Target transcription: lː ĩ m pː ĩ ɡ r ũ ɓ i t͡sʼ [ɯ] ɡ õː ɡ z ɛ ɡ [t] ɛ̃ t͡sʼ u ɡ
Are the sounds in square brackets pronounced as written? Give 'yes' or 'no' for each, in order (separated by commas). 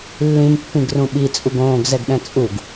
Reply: no, no